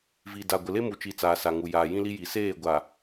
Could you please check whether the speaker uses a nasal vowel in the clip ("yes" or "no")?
yes